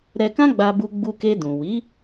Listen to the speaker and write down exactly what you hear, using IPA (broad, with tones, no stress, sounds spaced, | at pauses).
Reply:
ɾ ɛ˧ k ã˦ ɡ͡b a˧ b u˧ ɡ͡b u˧ k e˧ d ũ˨ w i˨˦